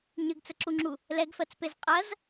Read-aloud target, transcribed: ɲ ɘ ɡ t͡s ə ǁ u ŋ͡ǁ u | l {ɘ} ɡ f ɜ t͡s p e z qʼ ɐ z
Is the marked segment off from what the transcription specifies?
yes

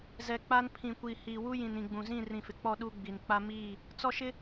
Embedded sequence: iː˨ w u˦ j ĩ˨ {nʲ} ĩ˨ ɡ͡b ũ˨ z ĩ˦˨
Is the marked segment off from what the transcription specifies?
yes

